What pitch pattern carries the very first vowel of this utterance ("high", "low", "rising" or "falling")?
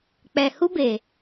low